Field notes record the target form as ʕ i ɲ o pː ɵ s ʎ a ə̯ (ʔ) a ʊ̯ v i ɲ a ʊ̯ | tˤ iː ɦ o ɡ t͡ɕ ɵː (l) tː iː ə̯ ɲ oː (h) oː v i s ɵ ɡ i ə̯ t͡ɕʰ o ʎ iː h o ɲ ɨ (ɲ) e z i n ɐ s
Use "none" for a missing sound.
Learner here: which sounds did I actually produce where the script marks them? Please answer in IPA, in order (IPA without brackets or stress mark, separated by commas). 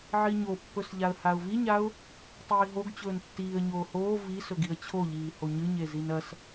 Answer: h, n, h, ɲ